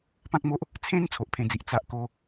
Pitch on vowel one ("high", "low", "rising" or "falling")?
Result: high